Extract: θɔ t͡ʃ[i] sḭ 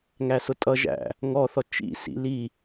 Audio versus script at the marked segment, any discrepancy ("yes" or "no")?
yes